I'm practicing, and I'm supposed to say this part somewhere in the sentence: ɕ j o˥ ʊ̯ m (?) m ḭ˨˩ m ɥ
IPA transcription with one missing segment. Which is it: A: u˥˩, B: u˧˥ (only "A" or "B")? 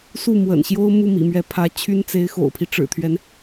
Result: A